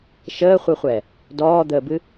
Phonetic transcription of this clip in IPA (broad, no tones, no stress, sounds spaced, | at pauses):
ʃ əː χʷ ɨ χʷ ɛ | d ɔː d̪ əː b ɨ